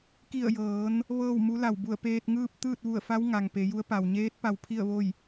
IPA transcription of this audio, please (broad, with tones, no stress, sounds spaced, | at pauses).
k i˧˩ ə̯ j ɤː˩˧ n | ʋ ɤː˥˨ w m u˧˥ l a˧˩ w b u˧˩ ə̯ p eː˧ t̚ ŋ ɯː˥˨ p̚ t̪ ɯː˥˨ t̚ ʋ u˧˩ ə̯ f a˧˥ w ŋ a˩ ŋ p e˩˧ j u˧˥ ə̯ p a˩ w ɲ eː˧˥ t̚ p a˧ w pʰ i˥˨ ə̯ ʋ o˥˨ j